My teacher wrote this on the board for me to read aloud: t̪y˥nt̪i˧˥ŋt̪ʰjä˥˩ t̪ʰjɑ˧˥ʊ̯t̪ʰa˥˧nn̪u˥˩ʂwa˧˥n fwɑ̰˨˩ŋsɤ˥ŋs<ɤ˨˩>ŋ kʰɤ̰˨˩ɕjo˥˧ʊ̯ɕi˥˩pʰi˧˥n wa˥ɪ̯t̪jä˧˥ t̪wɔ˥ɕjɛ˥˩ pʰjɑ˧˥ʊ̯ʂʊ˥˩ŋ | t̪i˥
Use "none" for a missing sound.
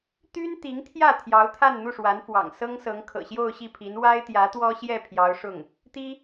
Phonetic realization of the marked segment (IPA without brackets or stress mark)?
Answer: ɤ˧˥